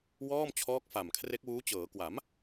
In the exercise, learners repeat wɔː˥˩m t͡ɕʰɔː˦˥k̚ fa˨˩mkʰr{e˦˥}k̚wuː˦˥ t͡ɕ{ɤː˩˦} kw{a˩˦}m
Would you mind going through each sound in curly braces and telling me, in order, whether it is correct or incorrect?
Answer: correct, correct, correct

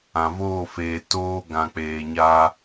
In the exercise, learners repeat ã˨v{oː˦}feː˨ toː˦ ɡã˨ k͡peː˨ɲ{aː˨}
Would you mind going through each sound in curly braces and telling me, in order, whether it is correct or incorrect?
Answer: incorrect: oː˦˨, incorrect: aː˦

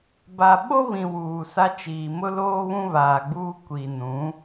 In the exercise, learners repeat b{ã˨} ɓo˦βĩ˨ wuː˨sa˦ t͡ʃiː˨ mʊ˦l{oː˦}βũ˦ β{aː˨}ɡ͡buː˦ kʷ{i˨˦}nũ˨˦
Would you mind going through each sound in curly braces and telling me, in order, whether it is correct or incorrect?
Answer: incorrect: a˨, correct, correct, incorrect: i˨

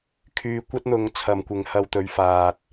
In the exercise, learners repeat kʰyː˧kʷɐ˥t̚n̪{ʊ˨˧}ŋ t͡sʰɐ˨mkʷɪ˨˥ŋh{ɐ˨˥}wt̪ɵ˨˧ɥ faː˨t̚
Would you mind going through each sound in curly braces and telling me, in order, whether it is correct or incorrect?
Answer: correct, incorrect: ɐ˧

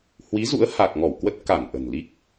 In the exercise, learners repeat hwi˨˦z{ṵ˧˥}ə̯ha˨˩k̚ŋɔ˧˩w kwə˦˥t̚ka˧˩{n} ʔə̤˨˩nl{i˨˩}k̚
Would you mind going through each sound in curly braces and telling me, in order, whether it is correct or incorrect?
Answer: correct, correct, incorrect: i˦˥

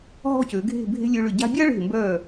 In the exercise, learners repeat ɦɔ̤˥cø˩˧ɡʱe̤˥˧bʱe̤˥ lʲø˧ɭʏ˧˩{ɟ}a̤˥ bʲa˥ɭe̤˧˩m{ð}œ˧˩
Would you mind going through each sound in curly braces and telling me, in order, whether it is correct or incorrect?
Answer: correct, incorrect: b

